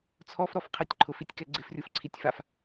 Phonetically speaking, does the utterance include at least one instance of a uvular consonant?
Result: yes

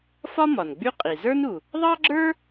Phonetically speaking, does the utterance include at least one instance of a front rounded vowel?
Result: yes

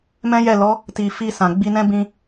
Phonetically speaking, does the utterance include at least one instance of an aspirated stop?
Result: no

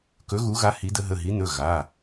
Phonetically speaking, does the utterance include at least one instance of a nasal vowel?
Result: no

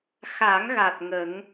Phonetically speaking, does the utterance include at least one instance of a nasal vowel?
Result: no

